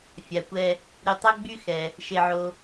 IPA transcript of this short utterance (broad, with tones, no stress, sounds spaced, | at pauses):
fʲ a˩ kʷ ɛ˨ | ɾ y˨ tˤ ø˦ ɡ͡b y˦ x ɛ˩ | ʃ e˨ ʕ o˨